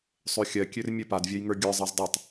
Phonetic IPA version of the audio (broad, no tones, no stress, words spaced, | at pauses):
sˤøxʲɜkʲør mʲɜpadvʲɜj ŋə˞ɡʲə˞zˤɜz dˤatˤ